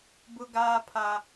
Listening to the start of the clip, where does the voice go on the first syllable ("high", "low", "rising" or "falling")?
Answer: high